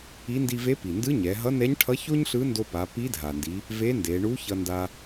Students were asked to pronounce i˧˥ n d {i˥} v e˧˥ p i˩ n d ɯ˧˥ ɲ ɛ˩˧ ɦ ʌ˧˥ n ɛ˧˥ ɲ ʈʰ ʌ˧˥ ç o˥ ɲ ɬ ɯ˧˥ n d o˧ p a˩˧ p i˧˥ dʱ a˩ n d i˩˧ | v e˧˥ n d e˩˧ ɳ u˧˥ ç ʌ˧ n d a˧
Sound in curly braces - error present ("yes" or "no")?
yes